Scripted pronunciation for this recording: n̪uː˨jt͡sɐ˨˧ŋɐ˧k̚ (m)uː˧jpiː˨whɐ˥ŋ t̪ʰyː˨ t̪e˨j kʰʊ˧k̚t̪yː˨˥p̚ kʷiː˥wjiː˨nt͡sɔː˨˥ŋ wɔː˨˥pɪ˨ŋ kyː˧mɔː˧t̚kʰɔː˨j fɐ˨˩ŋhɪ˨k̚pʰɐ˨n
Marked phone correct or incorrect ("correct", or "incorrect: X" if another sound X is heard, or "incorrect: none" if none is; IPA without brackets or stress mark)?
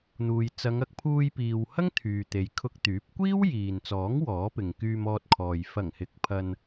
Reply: incorrect: pʰ